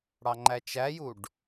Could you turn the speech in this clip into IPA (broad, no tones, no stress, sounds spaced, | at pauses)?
ɽ ɑ ŋ͡ǃ æ t͡ʃ æ j u ɖ